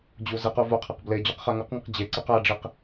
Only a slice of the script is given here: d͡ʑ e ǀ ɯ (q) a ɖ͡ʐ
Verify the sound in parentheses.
correct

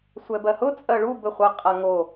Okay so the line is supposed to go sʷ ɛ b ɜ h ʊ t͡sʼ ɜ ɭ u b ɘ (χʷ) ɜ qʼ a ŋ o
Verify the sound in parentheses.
correct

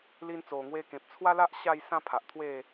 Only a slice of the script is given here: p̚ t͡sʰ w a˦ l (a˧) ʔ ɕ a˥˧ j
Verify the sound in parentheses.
incorrect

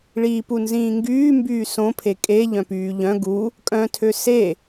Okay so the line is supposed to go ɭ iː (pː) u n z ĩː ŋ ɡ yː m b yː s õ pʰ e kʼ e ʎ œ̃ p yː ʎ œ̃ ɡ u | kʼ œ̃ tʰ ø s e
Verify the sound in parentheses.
incorrect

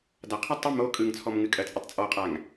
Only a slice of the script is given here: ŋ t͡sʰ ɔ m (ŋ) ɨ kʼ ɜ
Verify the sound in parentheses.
correct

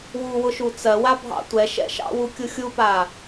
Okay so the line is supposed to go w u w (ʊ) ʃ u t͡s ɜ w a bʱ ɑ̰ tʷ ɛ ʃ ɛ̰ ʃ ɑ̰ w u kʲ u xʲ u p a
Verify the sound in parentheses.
correct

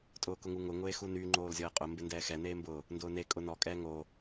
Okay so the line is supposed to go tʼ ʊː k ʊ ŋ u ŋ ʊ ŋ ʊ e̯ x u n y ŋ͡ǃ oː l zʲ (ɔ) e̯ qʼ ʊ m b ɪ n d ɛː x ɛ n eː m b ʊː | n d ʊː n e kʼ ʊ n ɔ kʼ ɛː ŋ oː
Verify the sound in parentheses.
correct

